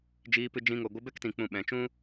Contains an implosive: yes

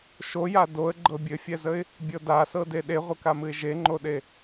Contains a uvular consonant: yes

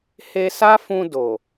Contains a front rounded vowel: no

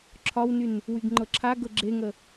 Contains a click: yes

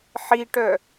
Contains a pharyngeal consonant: yes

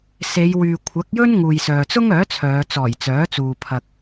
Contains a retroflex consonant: no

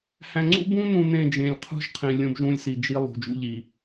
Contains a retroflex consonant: no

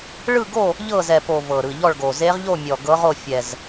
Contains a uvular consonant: yes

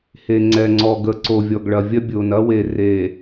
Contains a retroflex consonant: yes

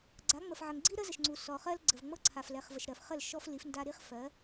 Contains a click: yes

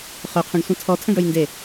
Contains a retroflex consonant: yes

